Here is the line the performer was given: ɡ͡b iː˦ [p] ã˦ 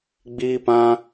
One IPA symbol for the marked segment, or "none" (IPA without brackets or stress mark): p